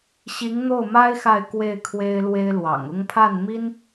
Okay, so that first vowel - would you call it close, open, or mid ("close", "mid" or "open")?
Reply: close